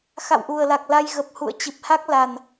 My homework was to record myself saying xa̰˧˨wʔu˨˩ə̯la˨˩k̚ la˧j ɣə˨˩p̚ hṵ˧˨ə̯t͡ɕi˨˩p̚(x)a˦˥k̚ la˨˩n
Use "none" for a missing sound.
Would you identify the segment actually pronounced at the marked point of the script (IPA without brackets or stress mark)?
h